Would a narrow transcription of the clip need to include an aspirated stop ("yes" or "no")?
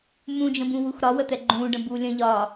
no